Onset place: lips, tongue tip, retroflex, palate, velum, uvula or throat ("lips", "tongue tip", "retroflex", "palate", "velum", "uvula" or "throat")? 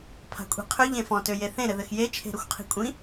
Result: lips